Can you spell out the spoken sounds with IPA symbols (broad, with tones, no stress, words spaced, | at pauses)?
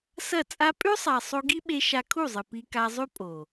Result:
sɐ˦˨t͡sʼa˦ pʼʉ˦sˤa˨ sˤo˧ɡi˦ɓe˧ ʃa˧kʰu˦˨zˤɨ˨ pi˧ka˧zˤʉ˦ pʼo˨